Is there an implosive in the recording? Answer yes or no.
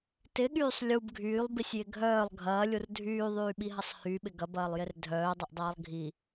yes